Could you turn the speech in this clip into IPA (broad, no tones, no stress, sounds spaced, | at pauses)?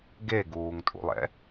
ɡ e ɡ uː ŋ tʼ ṵ lˠ ɛ̰